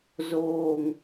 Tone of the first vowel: low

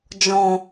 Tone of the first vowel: low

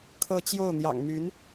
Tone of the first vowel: falling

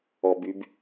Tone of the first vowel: low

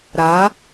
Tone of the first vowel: rising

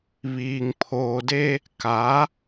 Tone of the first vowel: low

